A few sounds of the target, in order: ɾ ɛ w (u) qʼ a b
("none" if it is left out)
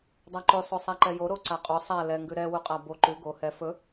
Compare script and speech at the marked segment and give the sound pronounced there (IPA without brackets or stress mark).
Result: u